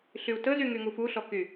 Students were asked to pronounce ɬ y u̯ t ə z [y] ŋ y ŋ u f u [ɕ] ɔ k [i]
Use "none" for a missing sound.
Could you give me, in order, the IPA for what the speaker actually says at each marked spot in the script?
y, ɬ, y

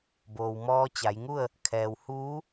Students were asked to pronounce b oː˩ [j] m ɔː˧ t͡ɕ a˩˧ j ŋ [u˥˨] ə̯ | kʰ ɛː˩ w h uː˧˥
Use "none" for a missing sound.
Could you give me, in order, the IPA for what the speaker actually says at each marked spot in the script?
w, u˥˨

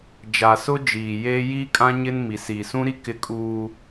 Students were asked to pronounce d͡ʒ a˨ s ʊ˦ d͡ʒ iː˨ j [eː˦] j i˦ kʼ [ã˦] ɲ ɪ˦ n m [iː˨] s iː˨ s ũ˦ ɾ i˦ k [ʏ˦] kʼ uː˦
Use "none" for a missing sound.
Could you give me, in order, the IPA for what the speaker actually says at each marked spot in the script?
eː˦, ã˦, i˨, ɪ˦

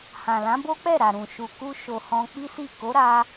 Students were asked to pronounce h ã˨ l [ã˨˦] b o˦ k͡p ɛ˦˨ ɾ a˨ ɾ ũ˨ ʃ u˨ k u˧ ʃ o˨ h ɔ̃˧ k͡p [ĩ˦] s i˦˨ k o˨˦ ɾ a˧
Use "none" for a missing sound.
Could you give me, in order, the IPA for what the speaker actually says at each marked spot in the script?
ã˨˦, i˦

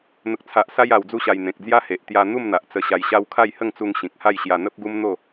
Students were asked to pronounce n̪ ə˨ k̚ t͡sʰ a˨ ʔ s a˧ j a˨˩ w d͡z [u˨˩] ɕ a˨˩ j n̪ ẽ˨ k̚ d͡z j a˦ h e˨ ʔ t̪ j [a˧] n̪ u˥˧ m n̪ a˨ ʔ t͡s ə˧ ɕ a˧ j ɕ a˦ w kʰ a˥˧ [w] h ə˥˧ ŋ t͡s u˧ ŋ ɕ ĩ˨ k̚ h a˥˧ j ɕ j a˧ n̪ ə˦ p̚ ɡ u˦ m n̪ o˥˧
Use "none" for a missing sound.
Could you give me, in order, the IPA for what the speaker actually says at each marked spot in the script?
u˧, a˧, j

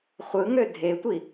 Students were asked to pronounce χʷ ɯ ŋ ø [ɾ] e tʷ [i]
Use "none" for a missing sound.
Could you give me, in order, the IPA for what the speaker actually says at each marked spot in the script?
dʱ, i

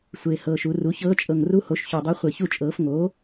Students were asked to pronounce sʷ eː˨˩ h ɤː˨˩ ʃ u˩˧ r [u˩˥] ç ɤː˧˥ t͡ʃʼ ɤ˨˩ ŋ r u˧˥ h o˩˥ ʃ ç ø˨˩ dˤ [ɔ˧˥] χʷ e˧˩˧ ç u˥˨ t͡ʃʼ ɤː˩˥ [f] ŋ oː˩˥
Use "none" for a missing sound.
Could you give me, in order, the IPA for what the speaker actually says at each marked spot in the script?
u˩˥, ɤ˧˥, f

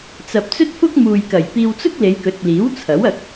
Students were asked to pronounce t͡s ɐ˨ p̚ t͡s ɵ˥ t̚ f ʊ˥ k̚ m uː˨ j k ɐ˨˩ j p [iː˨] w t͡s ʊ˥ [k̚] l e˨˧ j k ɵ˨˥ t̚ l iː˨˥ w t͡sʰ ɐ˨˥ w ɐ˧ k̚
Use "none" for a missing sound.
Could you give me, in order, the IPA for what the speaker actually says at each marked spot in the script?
iː˧, k̚

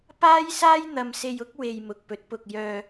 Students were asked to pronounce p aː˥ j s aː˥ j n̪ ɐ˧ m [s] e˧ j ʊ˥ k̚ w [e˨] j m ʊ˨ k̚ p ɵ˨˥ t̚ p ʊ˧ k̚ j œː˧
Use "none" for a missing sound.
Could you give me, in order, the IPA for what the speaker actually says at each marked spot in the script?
s, e˧

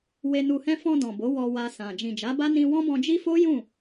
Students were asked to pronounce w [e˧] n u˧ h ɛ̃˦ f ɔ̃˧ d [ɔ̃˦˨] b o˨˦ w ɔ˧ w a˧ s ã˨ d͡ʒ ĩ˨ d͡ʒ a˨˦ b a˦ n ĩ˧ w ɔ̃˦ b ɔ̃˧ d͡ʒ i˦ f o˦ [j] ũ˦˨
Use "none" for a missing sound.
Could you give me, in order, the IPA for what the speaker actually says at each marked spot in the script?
e˧, ɔ̃˨, j

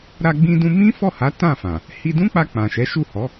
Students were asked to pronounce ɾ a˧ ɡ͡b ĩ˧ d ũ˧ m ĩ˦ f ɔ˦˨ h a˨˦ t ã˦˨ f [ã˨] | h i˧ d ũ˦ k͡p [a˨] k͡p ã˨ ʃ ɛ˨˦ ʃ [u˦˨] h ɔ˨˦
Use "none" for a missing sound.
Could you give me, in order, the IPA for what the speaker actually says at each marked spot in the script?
ã˨, a˧, u˦˨

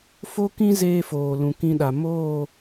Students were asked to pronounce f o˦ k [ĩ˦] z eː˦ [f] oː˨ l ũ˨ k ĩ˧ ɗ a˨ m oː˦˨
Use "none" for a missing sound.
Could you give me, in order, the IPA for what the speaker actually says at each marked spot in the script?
ĩ˦, f

